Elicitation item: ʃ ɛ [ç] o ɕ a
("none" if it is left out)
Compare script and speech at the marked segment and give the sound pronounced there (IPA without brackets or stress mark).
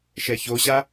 ç